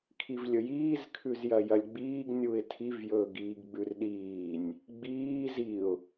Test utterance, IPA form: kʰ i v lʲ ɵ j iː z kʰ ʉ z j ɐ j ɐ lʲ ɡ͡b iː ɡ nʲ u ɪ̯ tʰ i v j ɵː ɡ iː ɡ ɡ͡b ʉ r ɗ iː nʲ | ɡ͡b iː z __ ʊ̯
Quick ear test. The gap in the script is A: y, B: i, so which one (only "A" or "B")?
B